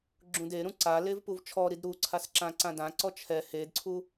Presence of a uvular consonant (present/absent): absent